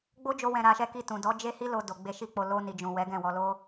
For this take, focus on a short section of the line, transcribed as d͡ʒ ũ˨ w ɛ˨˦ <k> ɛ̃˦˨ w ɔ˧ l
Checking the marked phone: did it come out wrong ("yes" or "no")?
yes